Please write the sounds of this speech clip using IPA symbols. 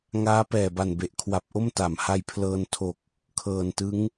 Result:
ŋ aː˦˥ p ɛː˨˩ b a˨˩ n b e˨˩ ʔ kʰ w a˨˩ p̚ ʔ o˥˩ m t a˩˦ m h a˧ j pʰ l ɤː˧ n tʰ o˨˩ k̚ | kʰ ɤː˨˩ n t ɯ˦˥ ŋ

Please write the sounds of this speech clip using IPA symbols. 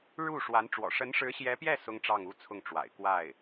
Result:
ɻ u˥˩ ʂ w a˧˥ n ʈ͡ʂ w ɔ̰˨˩ ʂ ə˧˥ n ʂ ɻ̩˧˥ ɕ j ɛ˧˥ p j ɛ˥˩ s ʊ˥ ŋ ʈ͡ʂ ɑ˥˩ ŋ u˥ t͡sʰ ʊ˥˩ ŋ ʈ͡ʂ w a̰˨˩ ɪ̯ k w a˥˩ ɪ̯

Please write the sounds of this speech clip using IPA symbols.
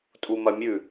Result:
tʼ u m ɐ mʲ ʉ

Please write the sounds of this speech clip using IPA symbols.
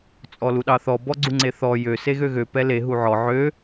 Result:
t͡sʼ ɔ l u ɗ ɑ θ ɔ b ɔ ɡ͡ǀ u ŋ͡ǀ e θ ɔ j ø s e ɣ ø ɣ ø p ɛ l e ɦ u ʕ ɔ ʕ ø

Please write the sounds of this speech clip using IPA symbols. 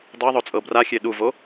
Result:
dˤ ɤ ðˤ o t͡sʼ ɤ b r a xʲ e ɗ u v o

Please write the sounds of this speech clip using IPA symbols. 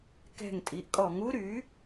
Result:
k ɛ̤˧˩ ŋ tʼ i˩˧ ʔ kʼ ɔ˧˩˧ ŋ u˦˥ ɾ y˩˥

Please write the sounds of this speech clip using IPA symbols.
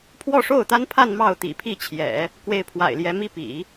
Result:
pʰ w ɔ˥˧ ʂ o˥˩ ʊ̯ t̪ a˥ n pʰ a˥˧ n m ɑ˥˩ ʊ̯ t̪ ḭ˨˩ pʰ i˥˩ t͡ɕʰ j ɛ̰˨˩˦ | k w e˥˩ ɪ̯ pʰ w a̰˨˩ ɪ̯ l j ɛ˧˥ m i˥˩ p ḭ˨˩˦

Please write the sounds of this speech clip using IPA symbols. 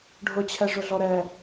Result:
ɖʱ ʊ t͡ɕʰ ɛ ʐ ʊ ɮ ɔ ɾ ɛ

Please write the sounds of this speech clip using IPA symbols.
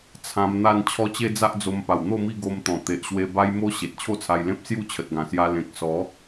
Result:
t͡sʰ ã˧ m n̪ a˥˧ n t͡ɕʰ ɔ˦ t͡ɕ e˦ d͡z a˦ ʔ d͡z o˧ m p a˨˩ w n̪ o˥˧ m i˥˧ ɡ o˧ m t̪ ɔ̃˨˩ t̪ e˨ ʔ ɕ w e˧ b a˧ j m o˧ ɕ e˨ t̚ t͡ɕʰ o˥˧ t͡sʰ a˧ j l ẽ˦ p̚ s j u˥˧ t͡ɕʰ ə˨ t̚ ɡ ã˨˩ s j a˧ l ẽ˨ k̚ s ɔ˨˦

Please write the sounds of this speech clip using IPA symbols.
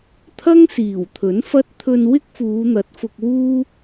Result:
t̪ʰ ɐ˥ ŋ s iː˨˩ w t̪ʰ ɵ˨˥ n f ɐ˥ t̚ t̪ʰ ɵ˧ n w ɪ˥ k̚ f uː˨˧ n̪ ɐ˨˥ t̚ f ʊ˧ k̚ w uː˥

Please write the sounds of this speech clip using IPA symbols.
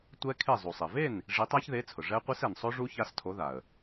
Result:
tʷ ɛ˦˥ kʰ e˥˩ zˤ u˩ sˤ e˩ v e˥˩ n | ʐ i˨˥ tˤ a˦˥ ç ð e˨˥ t͡sʰ ʊ˩ ʐ ɛ˦˥ qʷ i˦˥ s ɛ˩ n sˤ o˦˥ ʐ u˦˥ ç a˦˥ s tʰ o˨˥ ð a˩ ə̯

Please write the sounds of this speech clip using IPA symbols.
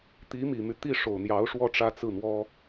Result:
t̪ i˧˥ m i˨˩ m y˦ t̪ i˥˩ ʂ o˨˩ ʊ̯ n̪ j ɑ˧˥ ʊ̯ ʂ w ɔ˥˩ ʈ͡ʂ ä˥ t͡s ɹ̩˥˩ n̪ w ɔ˥

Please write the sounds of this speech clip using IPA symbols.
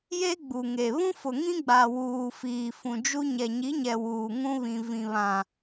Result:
j e˦ ɡ͡b u˨ ŋ e˨ β ũ˦ f ʊ˨ ŋ ĩ˦ ɡ͡b a˨ w uː˨ f iː˨ f ũ˨ d͡ʒ u˦ ɲ ɛ˨ ɲ i˨˦ ɲ ɛ˨ w uː˨ ŋ ũ˦ β ĩ˨ v ĩ˨ β ã˨

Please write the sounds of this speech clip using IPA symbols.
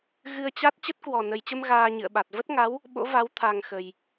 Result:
ɣ ɨ˧ ə̯ t͡ɕ a˦˥ t̚ t͡ɕ ə˦˥ t̚ k w ɔ˨˩ n ə˨˩ j t͡ɕ ə˧ m ɣ aː˧ ɲ ɨ̰˧˨ ə̯ ɓ a˨˩ t̚ v ə˦˥ t̚ ŋ a˨˦ w | ɓ o̰˧˥ v a˨˦ w t̪ʰ a˨˩ ŋ x ə˨˩ j

